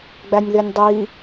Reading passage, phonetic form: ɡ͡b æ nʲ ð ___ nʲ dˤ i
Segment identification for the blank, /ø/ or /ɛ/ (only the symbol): ø